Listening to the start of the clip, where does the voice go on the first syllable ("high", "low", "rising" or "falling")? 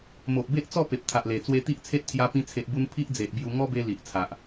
low